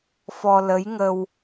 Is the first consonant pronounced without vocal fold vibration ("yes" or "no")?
yes